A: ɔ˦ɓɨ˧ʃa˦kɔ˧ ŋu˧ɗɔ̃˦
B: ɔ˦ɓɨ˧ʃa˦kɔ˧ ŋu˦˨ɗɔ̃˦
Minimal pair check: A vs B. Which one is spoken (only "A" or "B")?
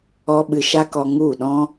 B